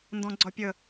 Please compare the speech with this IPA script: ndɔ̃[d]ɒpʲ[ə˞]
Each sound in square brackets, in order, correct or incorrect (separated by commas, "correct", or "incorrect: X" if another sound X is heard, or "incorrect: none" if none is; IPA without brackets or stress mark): incorrect: ɡ͡ǀ, incorrect: ə